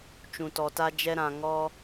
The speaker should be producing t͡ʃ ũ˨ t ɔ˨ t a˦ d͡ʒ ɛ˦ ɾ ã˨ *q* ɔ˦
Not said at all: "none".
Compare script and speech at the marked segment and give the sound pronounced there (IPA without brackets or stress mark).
ŋ